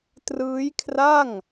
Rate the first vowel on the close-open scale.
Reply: close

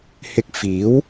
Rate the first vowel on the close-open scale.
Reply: close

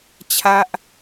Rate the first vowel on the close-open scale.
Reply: open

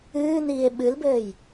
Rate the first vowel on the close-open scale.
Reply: close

